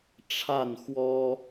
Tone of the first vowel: falling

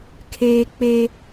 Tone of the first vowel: high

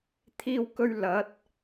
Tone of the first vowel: high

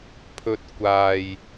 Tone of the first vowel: high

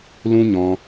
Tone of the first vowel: high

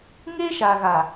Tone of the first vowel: high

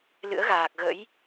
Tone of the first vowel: rising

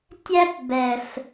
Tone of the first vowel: high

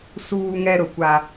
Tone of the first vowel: high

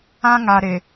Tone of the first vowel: high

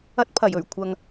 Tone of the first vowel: high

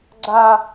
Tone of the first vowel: high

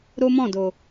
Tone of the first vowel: high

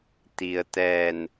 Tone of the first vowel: low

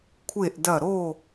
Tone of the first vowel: falling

